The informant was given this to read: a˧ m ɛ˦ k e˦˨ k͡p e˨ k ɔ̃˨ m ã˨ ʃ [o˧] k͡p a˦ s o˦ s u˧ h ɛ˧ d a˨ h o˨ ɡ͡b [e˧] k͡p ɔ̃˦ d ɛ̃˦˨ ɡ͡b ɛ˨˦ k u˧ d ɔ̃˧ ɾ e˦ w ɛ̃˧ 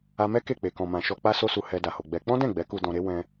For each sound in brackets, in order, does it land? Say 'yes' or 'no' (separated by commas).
no, no